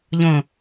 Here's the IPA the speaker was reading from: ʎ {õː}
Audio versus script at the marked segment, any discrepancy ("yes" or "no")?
yes